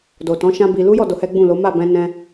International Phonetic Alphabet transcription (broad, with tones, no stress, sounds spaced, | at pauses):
d o˨ t ɔ̃˨˦ ʃ ã˦ b i˧ l u˦ j ɔ˦˨ d o˧ h ɛ˦ ɡ͡b ũ˦˨ l o˨˦ m a˦˨ b ɛ̃˧ n ɛ̃˧